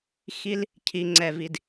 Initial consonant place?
velar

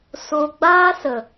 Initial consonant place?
alveolar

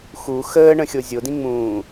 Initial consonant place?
velar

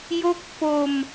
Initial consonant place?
palatal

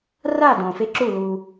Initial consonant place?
alveolar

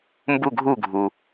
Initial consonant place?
labial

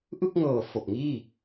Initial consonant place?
glottal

